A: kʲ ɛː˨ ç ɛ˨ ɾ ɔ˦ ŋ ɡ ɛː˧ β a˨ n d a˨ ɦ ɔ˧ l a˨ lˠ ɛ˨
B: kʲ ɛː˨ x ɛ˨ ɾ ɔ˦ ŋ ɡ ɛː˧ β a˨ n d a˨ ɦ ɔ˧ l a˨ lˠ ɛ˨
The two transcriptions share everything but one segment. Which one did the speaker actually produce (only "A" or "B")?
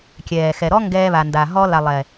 B